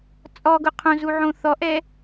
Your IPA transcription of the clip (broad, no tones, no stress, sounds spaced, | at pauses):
t͡sʼ ɔ ɡ ʊ qʰ õ z u ʕ õ θ ɔ ʔ ɛ